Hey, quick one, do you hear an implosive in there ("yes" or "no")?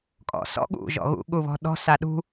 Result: yes